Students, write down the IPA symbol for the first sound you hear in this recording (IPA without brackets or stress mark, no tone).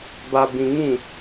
b